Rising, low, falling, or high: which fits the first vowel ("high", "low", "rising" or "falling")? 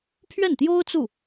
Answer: falling